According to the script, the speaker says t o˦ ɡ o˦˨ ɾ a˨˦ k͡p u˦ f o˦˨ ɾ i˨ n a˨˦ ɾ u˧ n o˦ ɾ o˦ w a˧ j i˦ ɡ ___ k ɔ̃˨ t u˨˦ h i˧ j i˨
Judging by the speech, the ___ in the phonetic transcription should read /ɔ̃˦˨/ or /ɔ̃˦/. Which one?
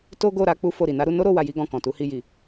ɔ̃˦˨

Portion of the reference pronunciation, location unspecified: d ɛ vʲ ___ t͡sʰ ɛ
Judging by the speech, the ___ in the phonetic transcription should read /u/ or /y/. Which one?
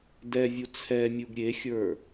u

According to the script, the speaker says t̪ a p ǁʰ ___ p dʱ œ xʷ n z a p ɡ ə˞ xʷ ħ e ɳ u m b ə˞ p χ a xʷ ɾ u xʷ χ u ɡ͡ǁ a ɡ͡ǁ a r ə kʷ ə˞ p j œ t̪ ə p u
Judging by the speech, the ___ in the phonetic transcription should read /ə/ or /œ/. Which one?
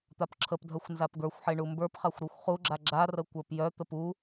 ə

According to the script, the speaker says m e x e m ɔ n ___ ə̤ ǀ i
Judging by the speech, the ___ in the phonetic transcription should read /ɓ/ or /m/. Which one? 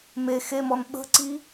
ɓ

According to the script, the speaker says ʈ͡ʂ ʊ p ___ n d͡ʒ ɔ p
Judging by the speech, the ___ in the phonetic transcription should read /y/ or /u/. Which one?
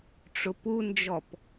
u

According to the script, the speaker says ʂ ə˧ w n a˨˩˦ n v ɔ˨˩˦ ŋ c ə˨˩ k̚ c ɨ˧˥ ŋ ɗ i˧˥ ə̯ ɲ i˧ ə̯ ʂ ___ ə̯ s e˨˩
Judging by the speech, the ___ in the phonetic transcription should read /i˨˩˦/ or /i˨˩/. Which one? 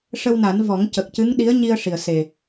i˨˩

